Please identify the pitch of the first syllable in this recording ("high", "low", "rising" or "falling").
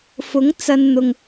rising